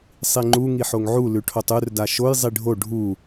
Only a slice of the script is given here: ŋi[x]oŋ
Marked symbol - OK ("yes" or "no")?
no